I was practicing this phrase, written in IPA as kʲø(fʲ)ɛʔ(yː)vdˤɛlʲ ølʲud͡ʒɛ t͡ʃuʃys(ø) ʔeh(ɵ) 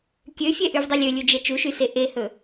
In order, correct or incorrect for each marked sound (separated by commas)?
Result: correct, incorrect, incorrect, correct